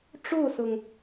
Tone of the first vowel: falling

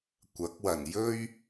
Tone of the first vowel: rising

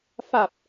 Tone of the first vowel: low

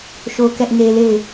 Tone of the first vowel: high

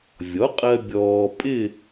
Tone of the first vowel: rising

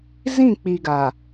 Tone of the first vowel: falling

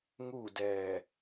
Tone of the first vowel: falling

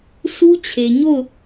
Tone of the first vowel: high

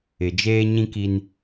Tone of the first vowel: low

